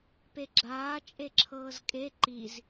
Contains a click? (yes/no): yes